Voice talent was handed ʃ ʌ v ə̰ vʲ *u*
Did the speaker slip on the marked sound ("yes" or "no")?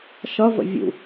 yes